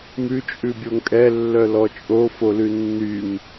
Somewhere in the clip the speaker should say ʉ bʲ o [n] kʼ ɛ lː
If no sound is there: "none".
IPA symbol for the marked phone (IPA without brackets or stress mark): ŋ